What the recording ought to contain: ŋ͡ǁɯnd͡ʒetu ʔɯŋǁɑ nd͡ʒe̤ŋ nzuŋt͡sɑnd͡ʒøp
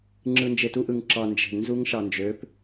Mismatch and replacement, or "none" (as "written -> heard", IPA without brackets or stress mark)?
t͡s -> ʃ